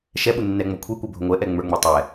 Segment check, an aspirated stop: present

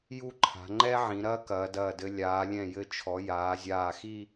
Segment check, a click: present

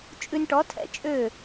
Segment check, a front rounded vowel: present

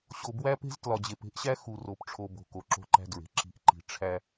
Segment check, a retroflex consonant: present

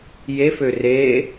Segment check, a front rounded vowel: present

